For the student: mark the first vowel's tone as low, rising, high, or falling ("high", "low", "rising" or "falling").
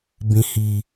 high